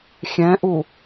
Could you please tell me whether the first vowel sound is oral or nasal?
nasal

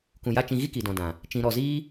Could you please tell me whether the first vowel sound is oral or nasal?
nasal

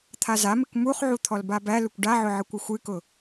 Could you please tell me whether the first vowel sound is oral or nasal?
oral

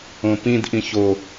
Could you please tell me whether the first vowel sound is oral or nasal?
nasal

